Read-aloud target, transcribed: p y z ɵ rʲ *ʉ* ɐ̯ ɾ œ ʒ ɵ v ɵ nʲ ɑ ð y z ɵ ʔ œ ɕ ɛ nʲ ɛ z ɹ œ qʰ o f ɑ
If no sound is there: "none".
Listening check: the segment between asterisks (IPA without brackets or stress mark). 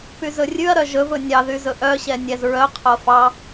ʉ